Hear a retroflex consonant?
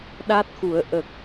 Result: no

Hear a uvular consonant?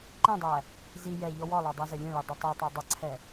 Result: no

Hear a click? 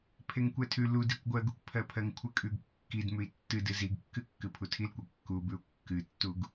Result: no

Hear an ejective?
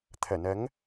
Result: no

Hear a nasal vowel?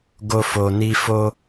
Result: no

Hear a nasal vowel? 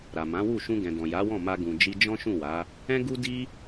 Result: yes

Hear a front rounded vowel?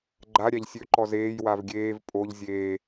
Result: yes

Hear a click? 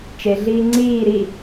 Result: yes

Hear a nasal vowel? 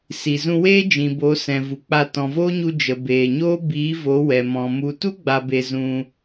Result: yes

